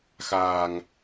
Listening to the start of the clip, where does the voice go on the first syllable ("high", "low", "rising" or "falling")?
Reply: low